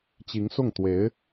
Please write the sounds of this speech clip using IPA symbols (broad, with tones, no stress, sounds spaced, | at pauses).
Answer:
t͡ɕ i˧˥ ŋ s ʊ˥˩ ŋ t̪ w e˧˥ ɪ̯